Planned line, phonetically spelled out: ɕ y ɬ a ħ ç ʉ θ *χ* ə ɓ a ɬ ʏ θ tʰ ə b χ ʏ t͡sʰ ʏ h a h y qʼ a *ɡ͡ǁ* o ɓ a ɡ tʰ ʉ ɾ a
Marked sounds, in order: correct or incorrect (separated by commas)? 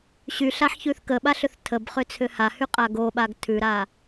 incorrect, incorrect